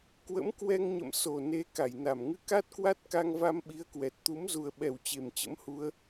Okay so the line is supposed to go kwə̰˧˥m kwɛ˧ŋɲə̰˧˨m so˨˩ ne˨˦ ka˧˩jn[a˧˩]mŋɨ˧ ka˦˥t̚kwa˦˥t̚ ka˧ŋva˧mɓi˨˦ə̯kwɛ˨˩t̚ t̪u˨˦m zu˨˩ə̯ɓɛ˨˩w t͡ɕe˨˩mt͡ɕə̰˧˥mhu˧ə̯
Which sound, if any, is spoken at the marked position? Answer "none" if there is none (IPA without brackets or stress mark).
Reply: a˧˩